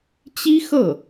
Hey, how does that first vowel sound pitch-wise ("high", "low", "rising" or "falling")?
high